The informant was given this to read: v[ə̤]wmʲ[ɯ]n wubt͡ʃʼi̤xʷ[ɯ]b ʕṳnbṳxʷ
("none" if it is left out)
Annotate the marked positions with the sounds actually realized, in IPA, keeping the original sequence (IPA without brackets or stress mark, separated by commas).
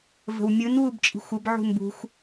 ə̤, ɯ, ə